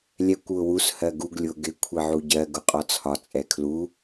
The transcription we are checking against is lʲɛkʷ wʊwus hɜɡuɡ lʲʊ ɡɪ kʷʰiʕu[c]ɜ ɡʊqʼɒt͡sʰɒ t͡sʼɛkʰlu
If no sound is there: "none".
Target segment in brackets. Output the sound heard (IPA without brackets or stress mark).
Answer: ɟ